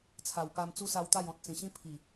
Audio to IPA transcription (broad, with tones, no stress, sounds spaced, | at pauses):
t͡sʰ a˨˩ w p a˧ m t͡s u˦ s a˧ w t̪ a˥˧ j ɔ̃˨ t̚ t͡s ĩ˨˩ ɕ ĩ˦ pʰ i˨˩